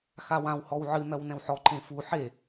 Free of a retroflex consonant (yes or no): yes